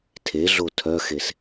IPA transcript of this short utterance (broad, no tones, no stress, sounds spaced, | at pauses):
tʰ e ɮ o tʰ œ x e s